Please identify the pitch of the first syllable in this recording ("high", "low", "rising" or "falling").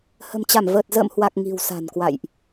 low